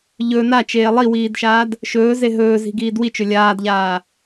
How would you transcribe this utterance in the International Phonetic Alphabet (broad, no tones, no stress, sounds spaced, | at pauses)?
ʎ ɵ n a t͡ʃ eː lˠ i w iː d ʃ aː d | ʃ ɵː z e ɦ ɵː z i̤ ɡ iː d w i t͡ʃ ɵ lʲ aː d ʎ aː